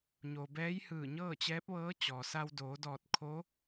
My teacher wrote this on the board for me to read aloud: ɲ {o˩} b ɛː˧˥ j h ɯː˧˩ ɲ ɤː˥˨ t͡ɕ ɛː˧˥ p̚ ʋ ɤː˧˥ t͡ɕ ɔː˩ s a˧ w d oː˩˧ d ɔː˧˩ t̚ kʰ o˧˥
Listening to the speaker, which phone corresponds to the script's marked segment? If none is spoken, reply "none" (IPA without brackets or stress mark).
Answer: o˩